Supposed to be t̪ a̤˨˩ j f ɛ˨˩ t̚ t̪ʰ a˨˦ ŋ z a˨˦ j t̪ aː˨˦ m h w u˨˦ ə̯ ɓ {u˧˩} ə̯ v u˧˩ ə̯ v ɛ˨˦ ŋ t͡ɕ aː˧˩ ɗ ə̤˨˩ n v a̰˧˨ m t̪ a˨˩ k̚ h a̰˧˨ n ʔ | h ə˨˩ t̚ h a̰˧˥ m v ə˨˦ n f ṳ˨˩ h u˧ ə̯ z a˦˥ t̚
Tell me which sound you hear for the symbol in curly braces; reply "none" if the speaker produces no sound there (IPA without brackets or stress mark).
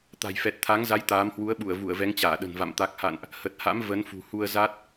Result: u˧˩